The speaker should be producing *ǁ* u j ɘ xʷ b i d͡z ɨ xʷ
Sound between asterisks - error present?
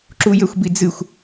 no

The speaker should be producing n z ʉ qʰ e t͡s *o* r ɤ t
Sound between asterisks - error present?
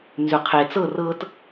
yes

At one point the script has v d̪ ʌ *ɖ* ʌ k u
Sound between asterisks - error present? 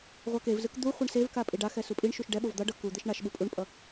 no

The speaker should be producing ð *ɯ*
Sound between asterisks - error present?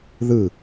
no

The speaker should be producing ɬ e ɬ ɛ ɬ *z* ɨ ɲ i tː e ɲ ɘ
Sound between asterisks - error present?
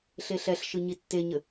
yes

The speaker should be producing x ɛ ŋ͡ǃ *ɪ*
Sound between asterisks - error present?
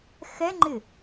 no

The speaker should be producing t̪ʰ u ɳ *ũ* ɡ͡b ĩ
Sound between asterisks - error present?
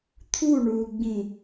yes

